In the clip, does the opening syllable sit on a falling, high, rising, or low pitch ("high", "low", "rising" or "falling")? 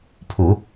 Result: low